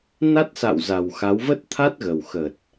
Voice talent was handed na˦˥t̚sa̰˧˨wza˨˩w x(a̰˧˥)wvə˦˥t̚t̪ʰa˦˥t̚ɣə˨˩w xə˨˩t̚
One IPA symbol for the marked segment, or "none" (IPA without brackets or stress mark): a˨˦